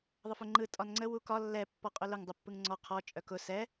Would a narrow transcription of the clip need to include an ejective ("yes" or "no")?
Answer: yes